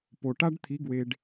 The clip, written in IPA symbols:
p o˨ ʈ a˦ ɖ t̪ʰ i˨˦ ɡ w e˧ ɖ

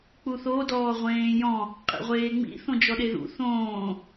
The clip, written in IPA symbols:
k͡p u θ o d ɔː ʁʷ ẽː j ɔ̃ | qʼ ḭ ʁʷ eː ŋ͡m ḭ θ õ d͡ʒ ɔ ɗ e ð ṵ θ õː

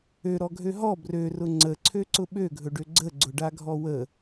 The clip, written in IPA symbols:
ø ɾ ɔ ɡʱ ø ɦ ɔ b r ø r ʊ ŋ͡ǀ ə ǀʰ ø ǀ ʊ ɓ ø ɡʱ ɵ ɖ ø ɡ͡ǀ ə ɡ͡ǀ ʊ ɖ a ɡʱ ɔ w ə

